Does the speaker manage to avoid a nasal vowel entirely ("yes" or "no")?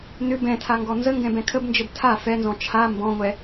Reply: no